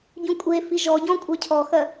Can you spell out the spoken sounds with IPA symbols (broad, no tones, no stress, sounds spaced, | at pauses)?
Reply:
ɟ ũ kʷʼ e f i ʒ ɔ ɟ ɔ̃ kʷʼ ə˞ cʰ ɔ x ɜ